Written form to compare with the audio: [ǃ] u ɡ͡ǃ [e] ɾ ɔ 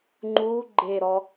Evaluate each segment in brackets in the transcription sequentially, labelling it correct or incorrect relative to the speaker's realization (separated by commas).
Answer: incorrect, correct